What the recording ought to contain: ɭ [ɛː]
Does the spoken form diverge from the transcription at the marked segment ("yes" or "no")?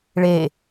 yes